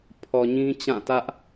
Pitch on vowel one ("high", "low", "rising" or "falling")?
low